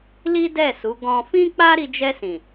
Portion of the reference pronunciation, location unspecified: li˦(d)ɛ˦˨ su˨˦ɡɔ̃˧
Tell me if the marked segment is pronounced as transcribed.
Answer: yes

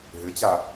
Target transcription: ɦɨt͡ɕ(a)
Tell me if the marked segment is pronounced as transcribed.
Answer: yes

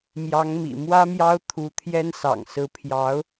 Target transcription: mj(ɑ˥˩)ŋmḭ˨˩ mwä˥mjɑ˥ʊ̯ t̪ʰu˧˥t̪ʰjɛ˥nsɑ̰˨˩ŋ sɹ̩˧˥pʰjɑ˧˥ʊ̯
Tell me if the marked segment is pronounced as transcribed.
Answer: no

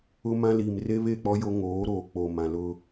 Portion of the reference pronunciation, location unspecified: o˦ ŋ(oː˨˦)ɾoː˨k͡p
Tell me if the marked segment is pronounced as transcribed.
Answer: yes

